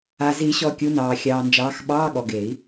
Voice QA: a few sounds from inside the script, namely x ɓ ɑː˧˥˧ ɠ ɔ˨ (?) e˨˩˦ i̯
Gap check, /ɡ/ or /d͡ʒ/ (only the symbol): ɡ